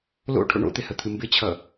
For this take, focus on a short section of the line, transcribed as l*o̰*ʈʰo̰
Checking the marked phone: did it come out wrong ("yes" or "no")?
no